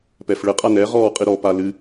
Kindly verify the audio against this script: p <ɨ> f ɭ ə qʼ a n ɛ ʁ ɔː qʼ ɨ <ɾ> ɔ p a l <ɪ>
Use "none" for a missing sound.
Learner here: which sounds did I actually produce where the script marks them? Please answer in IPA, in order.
ɛ, ɾ, ɨ

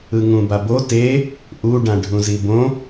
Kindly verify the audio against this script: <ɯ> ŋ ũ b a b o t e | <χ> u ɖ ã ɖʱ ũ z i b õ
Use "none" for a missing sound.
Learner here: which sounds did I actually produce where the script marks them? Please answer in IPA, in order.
ɯ, ʔ

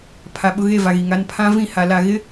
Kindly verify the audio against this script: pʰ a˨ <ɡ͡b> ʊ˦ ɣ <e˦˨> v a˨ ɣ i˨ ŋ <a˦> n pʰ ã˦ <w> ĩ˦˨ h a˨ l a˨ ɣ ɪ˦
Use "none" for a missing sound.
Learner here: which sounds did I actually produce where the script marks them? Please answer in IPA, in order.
ɓ, e˦˨, a˦, v

